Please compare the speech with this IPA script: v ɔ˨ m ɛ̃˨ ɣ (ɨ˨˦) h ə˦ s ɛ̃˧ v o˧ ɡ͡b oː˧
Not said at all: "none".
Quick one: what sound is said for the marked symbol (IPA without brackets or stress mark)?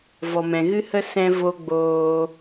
ɨ˦